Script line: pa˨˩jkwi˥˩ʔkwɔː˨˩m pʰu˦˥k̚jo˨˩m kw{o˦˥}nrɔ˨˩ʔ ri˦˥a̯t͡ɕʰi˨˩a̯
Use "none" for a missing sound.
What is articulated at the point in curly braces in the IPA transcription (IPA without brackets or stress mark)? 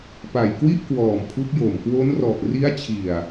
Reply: o˦˥